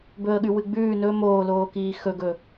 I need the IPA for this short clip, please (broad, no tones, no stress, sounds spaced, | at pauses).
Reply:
b ɵ ə̯ ɠ ʉ w ɨ ɡ͡b ʉː n ɵ m oː l oː k iː x ɵ ɡ ɵ